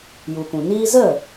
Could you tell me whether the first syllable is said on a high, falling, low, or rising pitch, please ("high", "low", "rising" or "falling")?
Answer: low